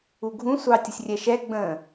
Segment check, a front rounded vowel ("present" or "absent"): absent